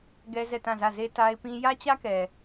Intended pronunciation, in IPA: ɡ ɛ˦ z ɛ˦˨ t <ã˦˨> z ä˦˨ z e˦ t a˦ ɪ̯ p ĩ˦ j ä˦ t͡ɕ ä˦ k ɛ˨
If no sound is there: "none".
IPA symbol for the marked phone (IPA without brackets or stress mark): ã˦˨